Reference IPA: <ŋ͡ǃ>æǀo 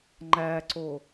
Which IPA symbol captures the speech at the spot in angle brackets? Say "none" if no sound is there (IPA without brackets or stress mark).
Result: ŋ͡ǃ